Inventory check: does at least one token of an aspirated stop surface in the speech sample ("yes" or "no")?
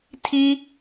yes